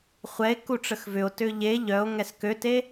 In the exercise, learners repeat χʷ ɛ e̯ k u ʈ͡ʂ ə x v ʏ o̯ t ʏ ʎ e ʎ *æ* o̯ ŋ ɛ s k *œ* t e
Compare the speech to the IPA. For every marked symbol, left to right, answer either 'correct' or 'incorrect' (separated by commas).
incorrect, incorrect